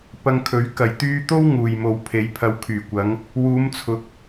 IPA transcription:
pɐ˧ŋkʰɵ˨˥ɥ kɐ˨˩j t̪yː˧t̪o˥w ŋuː˨jmo˨˧w pʰe˨˧jpʰɐ˨˧wkʰyː˨˩kʷɐ˨˧ŋ | wuː˨˧mt͡sʰʊ˨k̚

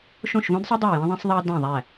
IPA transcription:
ʃõ˥˩ʃvõ˥dsˤɯ˥ dˤæ˥˩jẽ˥ðˤẽ˥sˤðˤɑ˥ dæ̃˥˩ðˤæ˥˩

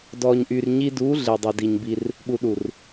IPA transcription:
dɔ˨ɲʔy˨rɲi˦ du˨˦ ɮe˨dˤɵ˨di˨ɲbi˦r | ɓu˨ɗu˨r

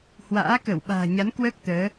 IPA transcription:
hwa̰ː˧˥kə˧˩wɓa̤ː˨˩ɲa˨˦n kwəː˦˥k̚ t̪əː˨˦

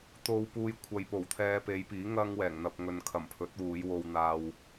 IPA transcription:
t̪o˧wpuː˧j kʷʰɐ˨jpo˨˩w t̪ʰɛː˧pe˨˧jpiː˨˥ ŋɐ˥ŋwɛː˨˩ŋn̪ɐ˧p̚ ŋɵ˨nkʰɐ˨˩mpʰɵ˨˥t̚wuː˨˧j wo˧wn̪aː˧w

